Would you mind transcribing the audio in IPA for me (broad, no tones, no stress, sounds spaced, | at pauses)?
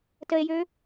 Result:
t ə e̯ j ø